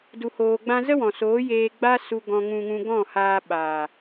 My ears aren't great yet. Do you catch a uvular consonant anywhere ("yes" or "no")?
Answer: no